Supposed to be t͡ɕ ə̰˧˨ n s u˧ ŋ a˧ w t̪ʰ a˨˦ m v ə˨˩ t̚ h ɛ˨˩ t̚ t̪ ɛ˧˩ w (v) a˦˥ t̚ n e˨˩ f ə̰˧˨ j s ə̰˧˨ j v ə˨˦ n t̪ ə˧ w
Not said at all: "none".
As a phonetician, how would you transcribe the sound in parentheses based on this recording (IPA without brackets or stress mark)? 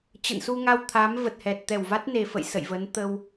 v